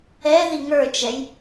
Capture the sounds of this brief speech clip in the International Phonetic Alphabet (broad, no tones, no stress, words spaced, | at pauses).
ɛ ðiŋə˞t͡ʃɛj